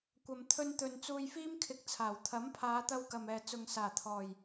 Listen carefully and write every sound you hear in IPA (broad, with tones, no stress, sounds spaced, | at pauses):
kʷ ɐ˨ m t̪ʰ ɵ˧ n t̪ ɵ˨ n t͡s uː˧ j f iː˥ m kʰ ɪ˨˥ k̚ t͡sʰ aː˨˩ w t̪ʰ ɐ˨˥ m pʰ aː˨˧ t̪ ɐ˧ w k ɐ˨ m ɛː˨ t͡s ʊ˨ ŋ s aː˨˩ t̪ʰ ɔː˨˩ j